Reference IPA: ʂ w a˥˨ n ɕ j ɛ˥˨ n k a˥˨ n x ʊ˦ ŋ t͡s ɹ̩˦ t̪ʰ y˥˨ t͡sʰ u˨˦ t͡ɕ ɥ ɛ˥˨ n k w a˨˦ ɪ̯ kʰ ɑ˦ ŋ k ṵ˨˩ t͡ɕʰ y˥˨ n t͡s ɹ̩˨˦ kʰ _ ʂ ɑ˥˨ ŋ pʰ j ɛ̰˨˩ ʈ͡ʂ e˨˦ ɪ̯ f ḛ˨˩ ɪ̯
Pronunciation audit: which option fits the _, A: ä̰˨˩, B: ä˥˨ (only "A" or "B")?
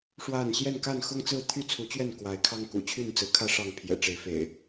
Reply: B